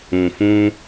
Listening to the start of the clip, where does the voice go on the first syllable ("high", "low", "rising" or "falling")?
low